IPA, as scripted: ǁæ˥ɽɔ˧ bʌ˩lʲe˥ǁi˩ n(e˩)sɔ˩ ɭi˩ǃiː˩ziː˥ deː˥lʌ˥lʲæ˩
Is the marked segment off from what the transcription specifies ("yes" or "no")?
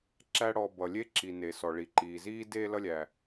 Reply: no